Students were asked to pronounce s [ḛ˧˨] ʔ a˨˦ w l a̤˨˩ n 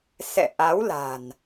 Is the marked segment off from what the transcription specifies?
yes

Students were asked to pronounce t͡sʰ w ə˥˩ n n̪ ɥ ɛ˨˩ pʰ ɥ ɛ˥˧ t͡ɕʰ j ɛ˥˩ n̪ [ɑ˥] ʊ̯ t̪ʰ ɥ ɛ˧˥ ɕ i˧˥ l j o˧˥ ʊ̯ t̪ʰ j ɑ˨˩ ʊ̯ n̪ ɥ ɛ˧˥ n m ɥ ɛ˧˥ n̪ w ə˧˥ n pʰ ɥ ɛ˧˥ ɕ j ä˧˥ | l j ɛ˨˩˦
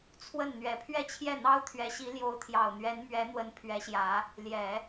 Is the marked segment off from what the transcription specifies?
no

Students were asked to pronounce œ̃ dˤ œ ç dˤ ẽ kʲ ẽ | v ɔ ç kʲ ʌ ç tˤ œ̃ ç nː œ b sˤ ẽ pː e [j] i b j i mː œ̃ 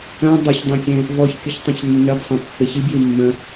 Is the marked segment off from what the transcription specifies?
yes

